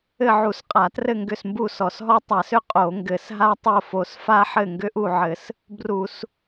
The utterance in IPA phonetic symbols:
ɘ˥˨ ʕ u˧˩˧ s qʼ a˧˩˧ t r ɘ˥˨ ŋ ɡ ʏ˥˨ s m b u˥˨ s ɔ˧˩˧ s ɦ ɔ˥ tˤ a˧˩˧ s ʏ˥˨ qʼ o˧˩˧ ŋ ɡ ɘ˧˩˧ s ɦ a˥ tˤ o˥˨ f o˧˩˧ s f a˥ ħ ɘ˥˨ ŋ ɡ ʏ˥ ʔ u˥˨ ʕ ɘ˧˩˧ s | b r u˧˩˧ s

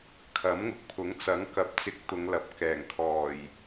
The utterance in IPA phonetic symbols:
kʰ ɐ˨˥ m ŋ ʊ˨ k̚ pʰ ʊ˨˥ ŋ t͡s ɐ˨˥ ŋ k ɐ˨˥ p̚ t͡s ɪ˧ k̚ t̪ ʊ˨˧ ŋ l ɐ˨ p̚ k ɛː˨˩ ŋ kʰ ɔː˨˩ j

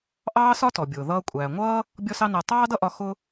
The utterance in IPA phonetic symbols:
ʔ ɑː˥ s ɒ˥ t ɔ˩ bʲ ʊː˩ ð ʌː˧ kʷʼ æː˩ ŋʷ ʌː˥ | bʲ ɔ˥ s ɑ˥ n æ˧ tˤ ɑː˥ d ʌ˥ ʔ ɒ˧ x ʊ˥

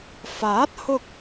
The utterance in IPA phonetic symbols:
f aː˨˥ t̚ h ʊ˧ k̚

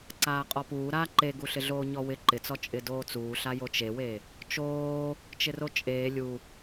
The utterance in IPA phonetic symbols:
ǀ aː qʼ ɔ p uː ɾ aː ǃ e ɡ u ɬ ɪ ɮ oː ɲ ɔ w ɪ ǃ ɪ t͡s ɔ t͡ʃʼ ɪ d oː t͡s uː ɬ a j o t͡ʃ e w e | t͡ʃ oː | t͡ʃ ɪ r o t͡ʃʼ eː lʲ u

